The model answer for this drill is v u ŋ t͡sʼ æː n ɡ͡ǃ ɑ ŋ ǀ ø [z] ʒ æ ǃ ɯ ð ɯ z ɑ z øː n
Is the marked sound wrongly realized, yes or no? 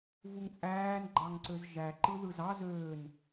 no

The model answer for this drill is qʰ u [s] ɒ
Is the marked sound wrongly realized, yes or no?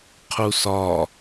no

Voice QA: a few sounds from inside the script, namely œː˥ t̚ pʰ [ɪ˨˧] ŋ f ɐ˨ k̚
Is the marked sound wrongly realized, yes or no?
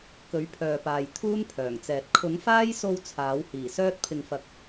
yes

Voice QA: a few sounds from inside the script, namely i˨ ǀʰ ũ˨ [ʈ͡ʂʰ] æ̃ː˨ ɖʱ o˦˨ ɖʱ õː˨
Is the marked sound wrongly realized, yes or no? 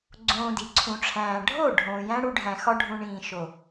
no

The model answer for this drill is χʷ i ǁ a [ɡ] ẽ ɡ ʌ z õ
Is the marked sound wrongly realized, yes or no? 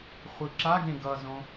no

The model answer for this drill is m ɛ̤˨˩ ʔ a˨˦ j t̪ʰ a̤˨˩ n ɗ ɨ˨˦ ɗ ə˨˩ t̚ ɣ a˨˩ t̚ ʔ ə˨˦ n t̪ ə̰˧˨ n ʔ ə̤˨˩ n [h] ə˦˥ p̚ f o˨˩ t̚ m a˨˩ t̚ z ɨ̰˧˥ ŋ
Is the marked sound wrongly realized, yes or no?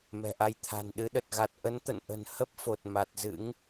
no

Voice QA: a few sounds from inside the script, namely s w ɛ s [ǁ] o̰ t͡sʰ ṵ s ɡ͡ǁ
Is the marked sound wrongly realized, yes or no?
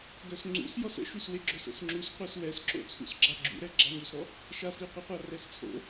no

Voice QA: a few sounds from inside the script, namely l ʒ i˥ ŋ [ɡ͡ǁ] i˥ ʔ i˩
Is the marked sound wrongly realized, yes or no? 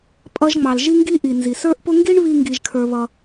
yes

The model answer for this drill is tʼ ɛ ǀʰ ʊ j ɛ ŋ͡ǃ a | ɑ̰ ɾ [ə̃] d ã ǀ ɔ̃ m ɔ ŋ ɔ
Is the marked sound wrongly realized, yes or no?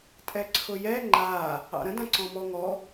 no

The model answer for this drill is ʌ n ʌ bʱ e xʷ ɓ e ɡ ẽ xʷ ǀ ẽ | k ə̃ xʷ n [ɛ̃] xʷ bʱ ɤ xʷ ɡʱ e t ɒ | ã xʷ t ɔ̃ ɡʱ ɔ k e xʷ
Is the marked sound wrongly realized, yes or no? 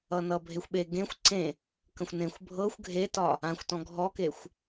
yes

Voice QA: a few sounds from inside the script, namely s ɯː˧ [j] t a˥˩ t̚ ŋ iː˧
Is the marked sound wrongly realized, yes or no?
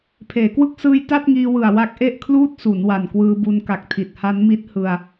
no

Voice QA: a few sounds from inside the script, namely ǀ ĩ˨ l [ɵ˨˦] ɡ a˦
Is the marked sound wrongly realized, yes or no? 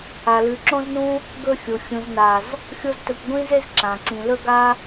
yes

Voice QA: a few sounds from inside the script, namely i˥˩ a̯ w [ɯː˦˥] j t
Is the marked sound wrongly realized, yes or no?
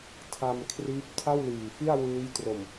no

